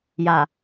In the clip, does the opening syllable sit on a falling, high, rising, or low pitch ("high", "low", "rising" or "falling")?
low